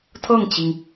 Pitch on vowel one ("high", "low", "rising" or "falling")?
falling